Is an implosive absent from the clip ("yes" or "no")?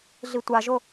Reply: yes